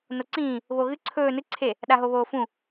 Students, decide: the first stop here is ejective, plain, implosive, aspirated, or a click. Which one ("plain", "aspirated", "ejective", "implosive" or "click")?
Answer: click